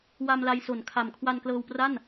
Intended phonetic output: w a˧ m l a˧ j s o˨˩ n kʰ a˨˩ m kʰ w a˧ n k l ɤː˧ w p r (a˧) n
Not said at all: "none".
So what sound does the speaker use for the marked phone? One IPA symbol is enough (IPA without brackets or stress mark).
a˥˩